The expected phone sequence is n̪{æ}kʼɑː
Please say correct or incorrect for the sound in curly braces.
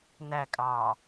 correct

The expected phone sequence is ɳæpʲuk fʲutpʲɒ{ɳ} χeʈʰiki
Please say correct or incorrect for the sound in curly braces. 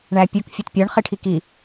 correct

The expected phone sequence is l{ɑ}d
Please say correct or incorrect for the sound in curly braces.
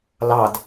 correct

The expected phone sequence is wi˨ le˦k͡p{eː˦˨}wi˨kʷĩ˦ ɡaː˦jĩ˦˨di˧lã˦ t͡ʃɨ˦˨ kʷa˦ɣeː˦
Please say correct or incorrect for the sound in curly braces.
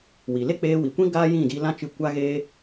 incorrect: eː˧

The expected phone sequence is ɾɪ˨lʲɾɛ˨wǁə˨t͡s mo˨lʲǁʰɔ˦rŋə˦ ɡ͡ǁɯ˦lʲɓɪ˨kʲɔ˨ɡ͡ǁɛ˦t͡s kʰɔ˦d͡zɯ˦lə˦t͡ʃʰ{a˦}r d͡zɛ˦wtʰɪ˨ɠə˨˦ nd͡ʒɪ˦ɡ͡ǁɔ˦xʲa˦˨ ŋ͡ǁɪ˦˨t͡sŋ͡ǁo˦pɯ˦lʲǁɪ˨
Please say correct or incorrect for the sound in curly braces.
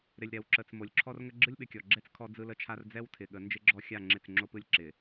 correct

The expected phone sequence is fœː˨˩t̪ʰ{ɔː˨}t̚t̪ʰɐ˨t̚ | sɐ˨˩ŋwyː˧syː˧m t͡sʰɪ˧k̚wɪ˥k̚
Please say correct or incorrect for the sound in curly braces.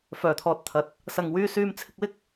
correct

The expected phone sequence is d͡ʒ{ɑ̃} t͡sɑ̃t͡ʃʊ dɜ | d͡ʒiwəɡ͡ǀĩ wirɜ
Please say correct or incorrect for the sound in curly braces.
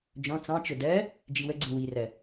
incorrect: ɔ̃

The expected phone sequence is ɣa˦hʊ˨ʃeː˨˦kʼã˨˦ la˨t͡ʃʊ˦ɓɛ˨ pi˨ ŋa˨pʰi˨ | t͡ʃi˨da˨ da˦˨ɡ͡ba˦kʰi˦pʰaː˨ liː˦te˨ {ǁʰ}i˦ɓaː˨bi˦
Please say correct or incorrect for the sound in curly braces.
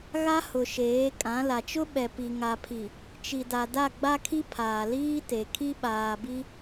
incorrect: kʰ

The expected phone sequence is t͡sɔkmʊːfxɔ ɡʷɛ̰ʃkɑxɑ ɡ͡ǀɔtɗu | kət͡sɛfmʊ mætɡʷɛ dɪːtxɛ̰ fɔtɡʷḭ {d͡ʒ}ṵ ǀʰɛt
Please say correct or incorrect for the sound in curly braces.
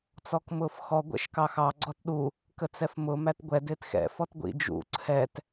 correct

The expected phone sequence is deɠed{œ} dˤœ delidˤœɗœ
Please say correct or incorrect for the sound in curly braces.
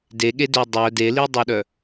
incorrect: ø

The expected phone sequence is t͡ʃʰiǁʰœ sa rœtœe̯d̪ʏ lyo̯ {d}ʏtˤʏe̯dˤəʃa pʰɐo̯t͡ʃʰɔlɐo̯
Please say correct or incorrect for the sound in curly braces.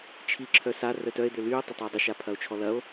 incorrect: tˤ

